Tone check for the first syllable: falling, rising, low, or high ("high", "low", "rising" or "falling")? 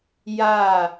falling